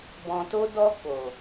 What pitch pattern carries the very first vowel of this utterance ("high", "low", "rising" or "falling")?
low